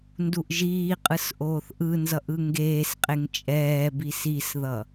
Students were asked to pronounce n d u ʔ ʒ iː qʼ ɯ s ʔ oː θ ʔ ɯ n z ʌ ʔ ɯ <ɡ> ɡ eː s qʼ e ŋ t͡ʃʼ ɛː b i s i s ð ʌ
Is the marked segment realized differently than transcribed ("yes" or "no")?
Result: yes